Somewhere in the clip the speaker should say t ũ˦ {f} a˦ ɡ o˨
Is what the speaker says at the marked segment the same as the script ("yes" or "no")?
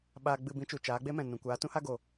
no